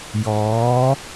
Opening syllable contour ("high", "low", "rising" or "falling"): rising